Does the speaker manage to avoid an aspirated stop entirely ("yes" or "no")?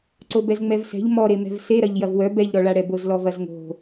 yes